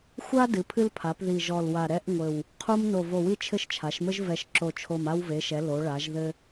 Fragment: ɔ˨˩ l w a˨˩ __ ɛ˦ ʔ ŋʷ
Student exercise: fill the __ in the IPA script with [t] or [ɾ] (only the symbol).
ɾ